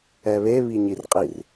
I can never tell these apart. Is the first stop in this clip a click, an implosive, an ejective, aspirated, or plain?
ejective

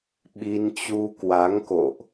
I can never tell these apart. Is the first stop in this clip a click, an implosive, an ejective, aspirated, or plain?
implosive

